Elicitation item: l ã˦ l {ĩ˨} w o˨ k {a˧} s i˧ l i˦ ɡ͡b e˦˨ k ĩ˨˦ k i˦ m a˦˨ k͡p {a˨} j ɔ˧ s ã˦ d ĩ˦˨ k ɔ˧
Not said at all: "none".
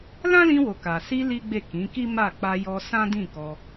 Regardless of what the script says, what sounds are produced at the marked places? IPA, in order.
ĩ˧, a˨, a˧

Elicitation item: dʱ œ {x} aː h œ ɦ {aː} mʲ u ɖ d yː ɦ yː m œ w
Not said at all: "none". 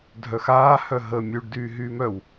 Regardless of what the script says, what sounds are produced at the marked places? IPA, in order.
x, əː

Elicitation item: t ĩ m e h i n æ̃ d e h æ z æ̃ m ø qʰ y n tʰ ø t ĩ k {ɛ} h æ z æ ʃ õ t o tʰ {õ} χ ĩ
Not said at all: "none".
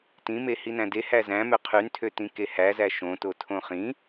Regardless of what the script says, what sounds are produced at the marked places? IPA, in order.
e, õ

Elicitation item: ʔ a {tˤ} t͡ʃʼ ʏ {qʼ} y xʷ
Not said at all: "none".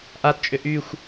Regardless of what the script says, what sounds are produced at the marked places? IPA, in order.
t, ʔ

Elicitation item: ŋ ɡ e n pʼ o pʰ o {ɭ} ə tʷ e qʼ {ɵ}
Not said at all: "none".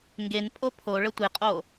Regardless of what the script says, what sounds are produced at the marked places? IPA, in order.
ɭ, o

